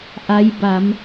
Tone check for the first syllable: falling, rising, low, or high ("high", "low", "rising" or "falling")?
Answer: rising